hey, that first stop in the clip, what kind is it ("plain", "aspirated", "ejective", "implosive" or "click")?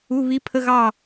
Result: aspirated